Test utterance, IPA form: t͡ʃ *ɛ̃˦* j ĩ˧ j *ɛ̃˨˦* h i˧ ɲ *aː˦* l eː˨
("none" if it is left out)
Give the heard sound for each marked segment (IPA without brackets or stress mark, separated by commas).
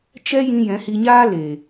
ɛ˦, ɛ̃˨˦, aː˦